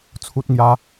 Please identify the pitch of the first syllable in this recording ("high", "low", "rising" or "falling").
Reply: high